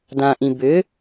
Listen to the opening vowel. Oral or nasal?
nasal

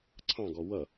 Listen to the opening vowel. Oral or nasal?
nasal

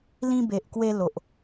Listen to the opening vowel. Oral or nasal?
nasal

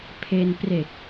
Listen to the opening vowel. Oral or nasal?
oral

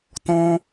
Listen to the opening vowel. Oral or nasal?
nasal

